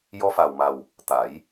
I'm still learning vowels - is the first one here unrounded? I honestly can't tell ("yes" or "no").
no